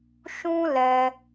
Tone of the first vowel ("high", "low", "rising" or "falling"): high